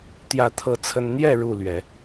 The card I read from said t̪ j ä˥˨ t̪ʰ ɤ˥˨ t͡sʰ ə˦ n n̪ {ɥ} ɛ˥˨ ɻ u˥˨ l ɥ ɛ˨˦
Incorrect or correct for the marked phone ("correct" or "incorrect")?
incorrect